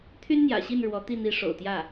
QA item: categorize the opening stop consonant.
aspirated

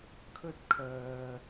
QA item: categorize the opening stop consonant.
aspirated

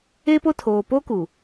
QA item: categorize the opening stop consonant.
plain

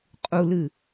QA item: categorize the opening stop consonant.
ejective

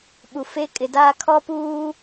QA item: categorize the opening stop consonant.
implosive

